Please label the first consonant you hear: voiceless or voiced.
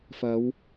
voiceless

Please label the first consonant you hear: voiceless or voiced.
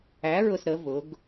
voiced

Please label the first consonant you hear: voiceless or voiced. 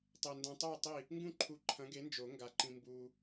voiceless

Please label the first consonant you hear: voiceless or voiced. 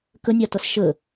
voiceless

